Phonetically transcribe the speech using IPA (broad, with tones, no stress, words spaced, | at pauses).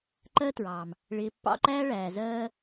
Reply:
ǃɜ˦tɹɑː˨m | ɭɪː˨pːɑ̰˧ǃæː˦ ɭæː˨zɜː˦